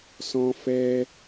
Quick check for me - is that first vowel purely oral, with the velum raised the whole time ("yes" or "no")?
no